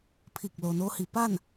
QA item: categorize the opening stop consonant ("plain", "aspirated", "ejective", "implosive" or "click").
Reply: aspirated